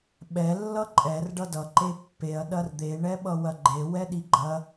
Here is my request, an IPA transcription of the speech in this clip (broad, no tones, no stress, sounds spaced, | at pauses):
ɓ ɛ lː ʌ ǃʼ ɛ r ɖ ʌ d ʌ ǃ e pː e ɐ̯ ɗ ɐ r d̪ e ɳ ɛ ɓ ʌ w ɐ ɡ͡ǃ e w ɛ ɗ i ɡ͡ǃ ɐ